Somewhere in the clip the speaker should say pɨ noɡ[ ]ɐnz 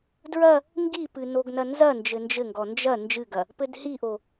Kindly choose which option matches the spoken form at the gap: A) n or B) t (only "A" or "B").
A